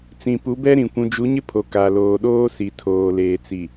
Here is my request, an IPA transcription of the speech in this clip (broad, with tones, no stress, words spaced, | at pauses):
t͡sĩ˨pu˨˦bɛ˦ ɾĩ˨ kʷũ˨d͡ʒu˨˦ɲɪ˦ pʰo˨ ka˨ loː˨ɗoː˦si˨ tʰoː˨leː˨t͡si˨